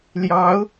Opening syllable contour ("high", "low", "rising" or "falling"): rising